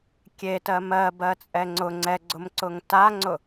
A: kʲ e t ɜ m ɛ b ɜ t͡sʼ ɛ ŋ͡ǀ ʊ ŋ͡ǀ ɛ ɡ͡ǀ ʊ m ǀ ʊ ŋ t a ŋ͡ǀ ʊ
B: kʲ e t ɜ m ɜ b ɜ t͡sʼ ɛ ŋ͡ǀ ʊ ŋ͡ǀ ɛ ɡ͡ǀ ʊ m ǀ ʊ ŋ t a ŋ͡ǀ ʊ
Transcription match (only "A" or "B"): B